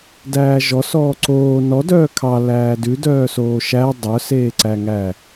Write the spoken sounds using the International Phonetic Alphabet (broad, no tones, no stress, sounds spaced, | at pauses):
d æː ʒ ɔ s ɔː ǀ oː n ɔ d œː kʰ ɑ l æː d ʉ d œː s oː ʃ æ dˤ œ s eː ǀ æ ŋ æ